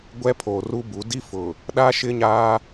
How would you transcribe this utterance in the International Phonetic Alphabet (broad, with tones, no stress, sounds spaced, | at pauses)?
ɡʷ ɛ˦ pʰ oː˨ r u˦ b u˨˦ d i˦ f ʊ˨ | ɗ a˦ ʃ ɪ˦ ɲ aː˦